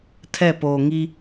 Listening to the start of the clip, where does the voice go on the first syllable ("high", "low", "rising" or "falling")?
falling